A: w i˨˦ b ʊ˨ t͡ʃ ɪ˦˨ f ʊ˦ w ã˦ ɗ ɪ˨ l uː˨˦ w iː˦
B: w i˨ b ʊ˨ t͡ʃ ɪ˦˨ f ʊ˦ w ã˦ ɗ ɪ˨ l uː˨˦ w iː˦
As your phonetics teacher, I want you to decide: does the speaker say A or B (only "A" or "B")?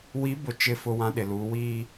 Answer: A